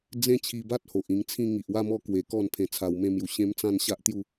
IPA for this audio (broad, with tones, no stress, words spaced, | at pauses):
d͡zẽ˦ t͡ɕʰi˧ba˦t̚ho˨ʔ ĩ˧ŋt͡sʰĩ˥˧ ŋi˨ʔwa˥˧mɔ˥˧ kwe˧kɔ˥˧n pʰẽ˧t͡sʰa˧wmẽ˦mju˧ ɕẽ˦mt͡sã˥˧n ɕa˦ʔt̪ju˥˧